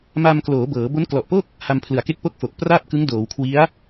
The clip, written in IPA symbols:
m a˧ m k l oː˩˦ b ɤː˩˦ b o˦˥ n k l ɔ˨˩ ʔ p o˥˩ k̚ | h a˧ m pʰ l ɯ˩˦ a̯ k e˦˥ k̚ p o˥˩ k̚ f o˨˩ k̚ p r aː˥˩ p̚ k ɯ˦˥ ŋ d oː˩˦ w kʰ w i˦˥ a̯

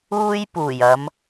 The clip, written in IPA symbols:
uː˥ j p uː˨˩ j ɐ˨˧ m

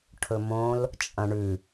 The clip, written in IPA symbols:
ʈʰ ɵ m õ l | t͡ʃʼ ɐ̃ ɳ ʉ

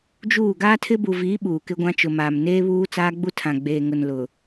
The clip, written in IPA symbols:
d͡ʒ uː˦˨ ɡ aː˦ tʰ ɪ˦ b u˨ v iː˨˦ ɓ uː˨ k ɪ˦ ɡʷ ã˦ t͡ʃ ʊ˨ m aː˨ m n eː˦ β uː˦ t͡s aː˦ ɡ͡b u˦ tʰ ã˨ ɡ͡b eː˨ ŋ ʊ˨ n l ʊ˨

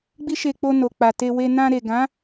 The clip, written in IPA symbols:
ɡ͡b i˦ ʃ e˧ k͡p o˧ n o˨ k͡p a˨ t e˧ w e˧ n ã˧ ɾ e˨ ɡ ã˨˦

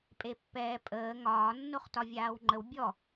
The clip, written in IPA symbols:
pʼ e pː ɛː pʼ əː ŋ ɒː nː o χ t ɒ vʲ aː w ŋ͡ǃ ə w bʲ ɔ

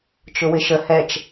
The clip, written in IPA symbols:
t͡ʃ ʊ w ɪ ʃ ə h ɛ t͡ʃ

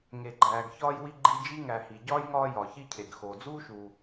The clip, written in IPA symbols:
ŋ e˨ ɡ͡ǃ æː˨ ɡ ç ɒː˦ j w i˦ ɡ͡ǃ i˦ d͡ʒ i˥ ŋ æ˨ h i˩ ɟ ɒː˥ j ŋ ɒː˦ j ɒ˩ ç i˦ cʰ e˩ ɡ x oː˩ d͡z uː˥ ʃ uː˨

